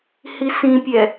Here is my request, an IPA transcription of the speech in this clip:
h i s ĩ pʲ ɛ

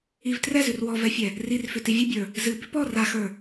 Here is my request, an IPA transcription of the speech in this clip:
i v t r ɛ z ʉ r w ɔ v ɛ fʲ ɛ | r i r f ʏ t i vʲ ɨ bʲ ə˞ | z ɨ b ʏ p ɔ r a x ə˞

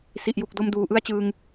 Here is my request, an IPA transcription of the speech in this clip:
s i˨˩ ʔ j u˨˩ k̚ d o˧ m d uː˨˩ ʔ ɯ˥˩ a̯ t͡ɕ ɯː˧ ŋ

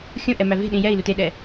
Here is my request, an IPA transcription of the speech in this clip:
xʲ õ ʔ ɛ m æ v e̤ ɗ ĩ j ɛ i̯ l u t e ɗ ɛ

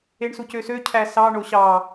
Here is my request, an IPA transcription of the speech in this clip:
e ɳ s u c ø s ø cʰ æ s ɑ ɳ o ɕ ɑ

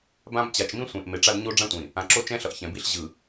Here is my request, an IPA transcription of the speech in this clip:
b ã˦ b t͡ɕ a˨ t͡ʃ m ĩ˦ sʷ ẽ˨ ʔ m e˨ ʈ͡ʂ a˦ d ɲ o˦ ɖ͡ʐ ã˦ tʷ ĩ˨ | ã˨ ǁ o˦ t͡ʃ ɛ̃˦ ɬ ʌ˨ ʔ ç ɛ̃˨ b i˦ ɬ ʑ ɯ˨

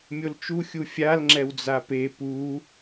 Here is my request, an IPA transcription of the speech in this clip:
mʲ o l t͡ʃ u xʲ u fʲ a l ŋ͡ǁ ɛ w d͡z a p e p u

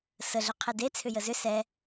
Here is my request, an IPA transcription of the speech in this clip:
s ə ɮ ʏ qʰ e d e t͡sʰ ʏ j ə z ʏ s ɛ

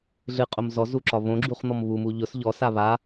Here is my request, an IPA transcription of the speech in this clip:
ɮ ɨ qʼ o m z ɔ z u ǁ ɒ β õ ɡ͡ǁ u χ n̪ ɔ m β u m u ʎ ʊ s ʎ ɔ s a β a

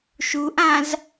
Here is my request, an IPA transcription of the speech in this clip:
ʃ u ʔ ã z

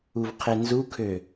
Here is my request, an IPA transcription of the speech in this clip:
u v qʰ e n z u kʰ ø

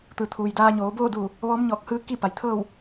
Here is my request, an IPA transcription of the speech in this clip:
t̪ ɯː˩ t̪ʰ uː˩ j d aː˧ ɲ oː˩˧ b oː˥˨ d uː˧˩ | ʋ ɔː˧˥ m ɲ ɔː˧˩ k̚ h ɯː˧˥ k i˥˨ p a˩ j t̪ʰ ɤː˥˨ w

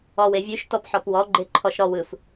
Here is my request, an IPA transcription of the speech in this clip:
ɔ w e vʲ ʉ ʃ t ɔ p ħ ɔ p w ɔ ɡ͡ǃ e ǃʰ ɔ ʃ ɾ ɔ w ɯ f

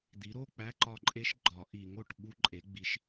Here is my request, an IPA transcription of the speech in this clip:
d̪ i˩˥ ɾ o˧˥˧ k͡p æ˧˥˧ ǃ ɒ˦˨ ǃʼ e˦˥ ʃ ɡ͡ǃ ɒ˨˩˦ ʔ i˨˩˦ ŋ o˨˩ ʈ ɓ u˦˥ ǃʼ e˩˥ ɡ͡b i˩˥ ʃ

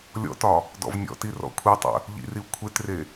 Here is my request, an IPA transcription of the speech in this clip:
lʲ ɔ̰ t ɒ | d ɔ̰ v nʲ ɔ̰ t i r ɔ̰ kʷʰ i tˤ ə̰ | ʎ ḭ r i u̯ kʷʰ e t r e

